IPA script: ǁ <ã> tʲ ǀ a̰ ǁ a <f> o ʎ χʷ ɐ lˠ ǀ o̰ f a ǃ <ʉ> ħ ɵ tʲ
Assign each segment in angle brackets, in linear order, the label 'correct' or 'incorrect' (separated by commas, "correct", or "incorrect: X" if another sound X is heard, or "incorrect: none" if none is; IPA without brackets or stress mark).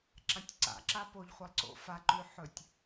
correct, incorrect: p, correct